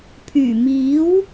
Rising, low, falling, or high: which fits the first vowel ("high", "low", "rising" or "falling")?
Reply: low